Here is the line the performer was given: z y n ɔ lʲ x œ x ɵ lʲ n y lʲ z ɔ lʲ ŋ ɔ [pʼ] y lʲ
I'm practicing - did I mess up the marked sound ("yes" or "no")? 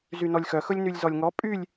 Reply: no